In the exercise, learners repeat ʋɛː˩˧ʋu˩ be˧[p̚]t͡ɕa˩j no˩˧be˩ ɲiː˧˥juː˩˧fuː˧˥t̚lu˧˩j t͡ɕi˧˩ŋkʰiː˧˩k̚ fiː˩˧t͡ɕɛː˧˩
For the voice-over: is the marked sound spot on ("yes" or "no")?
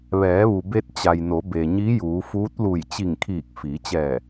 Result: no